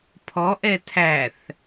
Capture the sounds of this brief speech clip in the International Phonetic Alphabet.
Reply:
pʰɔʔɛ tʰæθ

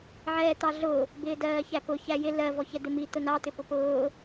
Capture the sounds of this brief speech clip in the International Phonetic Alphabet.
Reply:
ʕɛːt̪ɑɮʊː | bɪːdɜːçæpʊ çæjɪ lɜ vɔçɛd̪ɪmi t̪ʊnɑ t̪ɪpʊpʊː

